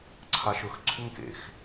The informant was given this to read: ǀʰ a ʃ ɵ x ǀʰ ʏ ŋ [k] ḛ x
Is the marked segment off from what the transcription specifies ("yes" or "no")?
no